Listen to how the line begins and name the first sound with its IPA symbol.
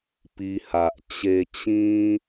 p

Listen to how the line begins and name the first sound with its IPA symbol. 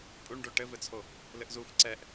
pʼ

